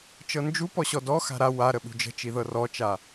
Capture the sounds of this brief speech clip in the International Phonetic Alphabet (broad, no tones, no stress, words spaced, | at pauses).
t͡ʃɤnd͡ʒupɔ ɕɔdɔ xa̤ɾa waɾə ɓṳd͡ʒə̤t͡ʃiðɤ rɔt͡ʃa